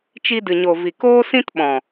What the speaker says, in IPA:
t͡ʃ i˧ d ɨ˨ ɲ o˨ v i˨ k oː˦ s ĩ˦ t ɓ ɔ̃˨

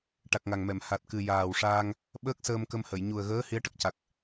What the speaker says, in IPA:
ʈ a˨˩ k̚ ŋ a˨˩ ŋ m ɛ˨˩˨ m h a˨˩ t̚ k ɨ˨˩ j aː˨˩ w ʂ aː˧ ŋ | ɓ əː˦˥ k̚ s əː˧ m k ə˧ m h ə˨˩˨ j ɲ u˨˩ ə̯ ɣ əː˧˥ h i˧˥ ə̯ ʈ ə˨˩ k̚ c a˨˩ k̚

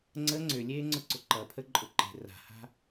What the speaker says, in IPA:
ŋ͡ǀ ə ŋ͡ǀ ʏ lʲ eː ŋ͡ǀ ʊ ǀ ʊ ǃ ʌ pʰ ə ǃʼ ʊ ǃ e̤ r a̤ h a̤

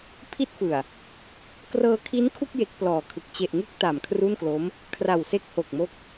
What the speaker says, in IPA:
pʰ i˥˩ t̚ f ɯ˨˩ a̯ | k r ɤː˧ kʰ i˦˥ n kʰ u˥˩ k̚ j e˦˥ k̚ p l ɔː˨˩ kʰ ɯ˨˩ k̚ t͡ɕ e˨˩ ʔ ŋ u˦˥ k̚ t a˨˩ m kʰ r u˥˩ n k l o˦˥ m | kʰ r a˨˩ w s e˦˥ k̚ h o˨˩ k̚ m o˦˥ k̚

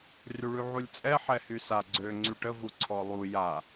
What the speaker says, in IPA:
r y ɭ y ʕ u lʲ t͡sʼ ɛ ħ ɛ h y s a ɡ͡ǀ ø ŋ͡ǀ y ʈ ə v u ǀʰ ɔ lˠ u j a

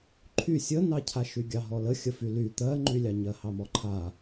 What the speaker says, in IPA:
ǃʰ y sʲ ə n ɑ cʰ a ʃ y ɡʲ ɑ ɦ ɔ l ə xʲ ə f y l y t̪ ɜ ŋ͡ǃ y lʲ ɑ ɲ ɜ h ɑ m ɔ ǃʰ a

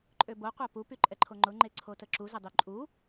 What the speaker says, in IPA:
ǃʼ ø b o qʷ a p u p y ǃʼ ɛ ǃʰ o ŋ͡ǃ ʊ ŋ͡ǃ e ǀʰ o t ə ǁ u z ə dˤ y ǃʼ u

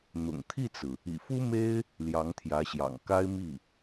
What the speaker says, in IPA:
n̪ ʊ̰˨˩ ŋ t̪ʰ i˥˩ t͡s ɹ̩˩ | ḭ˨˩ f u˥ m e˥ ɪ̯ | l j ɑ˧˥ ŋ t̪ʰ j ä˧˥ ɕ j ɑ̰˨˩ ŋ k a˥ ɪ̯ m i˥˩

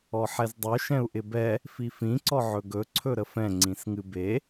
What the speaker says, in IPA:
ɔ ħ ɛ z dˤ ɵ ʃ ɛ̃ u̯ ʔ ɪ b ɛ | f i f ĩ ǀ ɔ ʕ ɵ ɡ ɵ ǀʰ ɵ ɾ ə f ɛ̃ ŋ͡ǀ ĩ s ŋ ɨ b e

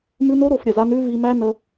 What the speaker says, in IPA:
m ʉ˧ n o˦ ɾ o˧ f ɾʲ ə˨ z a˦ n ʉ˦ v i˧ m æ˦ n ə˧

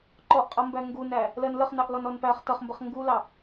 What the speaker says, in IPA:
ǃ ɔ ʔ qʼ ʌ m b æ ŋ ɡ u n æ | l ɜ n l ə χ n ɑ ʔ l ɔ n ɔ n p æ χ t ʌ χ m b ə χ ŋ ɡ u l ɑ

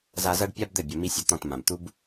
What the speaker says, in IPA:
z a˧ z ɐ˦ ɖ pʲ a˦ b d̪ ɘ˦˨ bʲ ɐ˧ m i˦ sʲ ɐ˧ t̪ ɔ̃˦˨ t m ã˨ b t̪ u˧ b

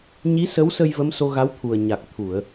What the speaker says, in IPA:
ɲ i˧˥ s ə˧˥ w s ə˧ j v ə˧˥ m s o˧ ɣ a˧˥ w t̪ʰ u˨˩ ə̯ ɲ a˨˩ k̚ t̪ʰ u˨˩˨ ə̯

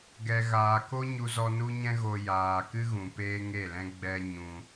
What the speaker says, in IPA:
ɡ ɛ˨ ɣ aː˨ k o˦ ɲ u˧ z ɔ˧ n u˦ ɲ ɛ̃˦ ɣ o˧ j aː˨ k ɨ˦ ɣ ũ˨ p eː˦ ŋ e˦˨ l ɛ̃˦ ɡ͡b ɛ˦ ɲ ũ˧

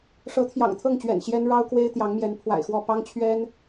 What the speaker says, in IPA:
ʂ ɤ˨˦ t̪ʰ j ɑ̰˨˩ ŋ t̪ʰ ɤ˥˨ ŋ t͡ɕ ɥ ɛ̰˨˩ n ɕ j ɛ˦ n ɻ ɑ˦ ʊ̯ k w e˦ ɪ̯ t̪ j ɑ˨˦ ŋ m j ɛ˨˦ n pʰ w a̰˨˩ ɪ̯ x w ɔ˥˨ p ɑ˦ ŋ t͡ɕʰ ɥ ɛ˦ n

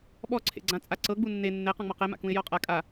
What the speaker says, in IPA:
ɓ ɔ ǀʰ ḛ ɡ͡ǀ ã t͡sʼ a ǀ ɤ ɡ͡b u nː e nː e q ɔ̃ ŋ͡m ɔ q e m a̰ k ũ ɪ̯ j ɔ qʼ a kʼ a

